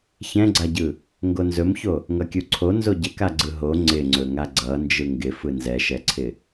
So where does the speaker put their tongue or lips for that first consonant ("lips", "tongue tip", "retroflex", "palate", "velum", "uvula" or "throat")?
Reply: palate